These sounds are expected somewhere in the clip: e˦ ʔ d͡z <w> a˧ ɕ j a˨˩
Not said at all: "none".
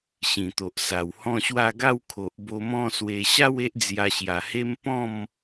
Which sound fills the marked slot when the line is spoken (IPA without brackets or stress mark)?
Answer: j